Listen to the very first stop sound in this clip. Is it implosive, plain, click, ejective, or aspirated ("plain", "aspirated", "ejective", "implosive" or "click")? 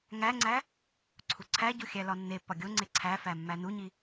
click